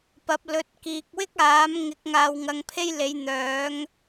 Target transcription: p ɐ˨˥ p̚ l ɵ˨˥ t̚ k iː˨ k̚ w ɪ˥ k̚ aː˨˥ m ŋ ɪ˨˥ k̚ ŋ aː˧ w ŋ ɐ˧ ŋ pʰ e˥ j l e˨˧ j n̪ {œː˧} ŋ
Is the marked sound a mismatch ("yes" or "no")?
yes